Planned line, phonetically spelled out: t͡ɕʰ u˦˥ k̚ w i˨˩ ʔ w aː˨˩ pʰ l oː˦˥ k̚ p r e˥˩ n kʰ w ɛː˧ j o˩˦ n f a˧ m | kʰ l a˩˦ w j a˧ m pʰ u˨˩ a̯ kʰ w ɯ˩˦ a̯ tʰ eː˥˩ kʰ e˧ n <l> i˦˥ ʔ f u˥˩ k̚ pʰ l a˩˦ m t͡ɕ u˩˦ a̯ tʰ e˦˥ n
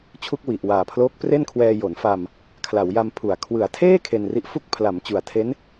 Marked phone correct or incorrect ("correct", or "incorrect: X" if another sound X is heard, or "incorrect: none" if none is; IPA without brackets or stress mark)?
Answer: incorrect: r